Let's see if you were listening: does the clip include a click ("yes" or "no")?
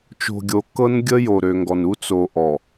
no